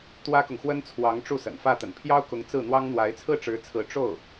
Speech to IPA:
t̪wä˥kʊ˨ŋxwə˥n t͡sʰwɑ˧˥ŋ ʈ͡ʂu˥˩sə̰˨˩nfä˥˩ t̪ə̰˨˩npʰjɑ˥ʊ̯kʊ˧˥ŋ t͡sɹ̩˥˩n̪wɑ˥ŋn̪wa˧˥ɪ̯ t͡sʰɹ̩˥˩ʈ͡ʂɻ̩˧˥t͡sʰɹ̩˧˥ ʈ͡ʂo˥˩ʊ̯

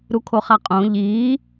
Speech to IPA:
ɾukʰoχaqʼõ ʎiː

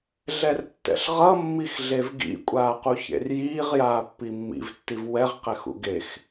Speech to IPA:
ɮɛrtːɛ̰ɬʁʌ mːixɮevɡḭ kʷʼaːquçḛrjiːʁ jaːpːimːḭv tːivwɛʁ qɛxṵɡex

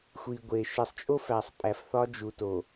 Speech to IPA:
xʷi˨ɡʷe˨ ʃe˨sˤt͡ʃʼo˦fæ˨sˤ pʼæ˨fθɒ˦d͡ʒu˨ to˨

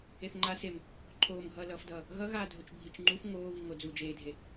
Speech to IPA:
eθŋ͡ǃa sem | ǃʰoːmɡʱʌːlʌːfdʌː | ɣʌɣaːdʱot͡ʃ bʱit͡ʃŋ͡ǃuf ŋoːβiŋo d͡zuːd͡ʒeːdʱe

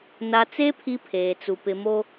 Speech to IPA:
na˨t͡se˦ pʰi˦pʰeː˨t͡su˨ pɪ˨mo˦

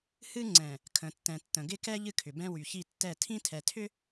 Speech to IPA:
hɨ˦ ŋ͡ǀɛ̃˨ | kʰə̃˨tːɛ̃˨ tːə̃˨ ɡɪ˦kɛ˦ ʎɨ˦kʰʏ˨bɛ̃˦ wy˨çi˦˨tːɛ˦˨ tʰĩ˦tʰɛ˨tʰʏ˦

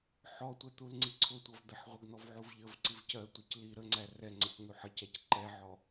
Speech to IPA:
ħɔtʷɛ t̪ulŋ͡ǀiǀʰʊtʷʌv d̪əħʁʷəɡn̪ɔv ʕuvʎəvǀiv cɜtʷic li ɾəŋ͡ǀæ rɛŋ͡ǀəc n̪uħʌcæc ǃɛʕɔ

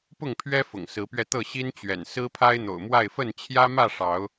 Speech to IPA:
pʊ˥˨ŋpʰɥɛ˦ fʊ̰˨˩ŋsɹ̩˨˦pɥɛ˧t̪ɤ˥˨ ɕi˦nt͡ɕɥɛ̰˨˩n sɹ̩˦pʰa˦ɪ̯n̪o̰˨˩ʊ̯mwa˥˨ɪ̯ fə˥˨nt͡ɕʰjä˦mä˥˨ ʂɑ˨˦ʊ̯

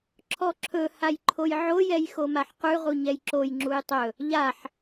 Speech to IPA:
ǁʰɔǁʰɵ hajǃʰojʕo jɛjxomaħqʉ ʁuɲɛjǁoj ŋ͡ǁujtˤɵ | ʎaħ

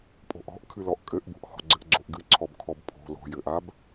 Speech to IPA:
pʼo̤ʔɔ̤ʔ kʰɨlɔʔkʼɘʔbo̤ʔ hɔ̤ɡ͡ǀɘʔɡ͡ǀoʔɡɨ ǀʰɔbkʰɔbpʰo̤ lo̤jɘʔab

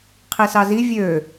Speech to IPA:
qʰisɑzi vʲø

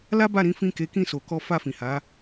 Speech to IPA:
la˦ba˦˨ɾĩ˨˦ fĩ˦˨ke˨˦ kĩ˦˨so˨kɔ˧ fa˧fĩ˨ha˨˦

